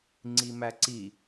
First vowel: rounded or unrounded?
unrounded